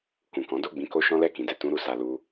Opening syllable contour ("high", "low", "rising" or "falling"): low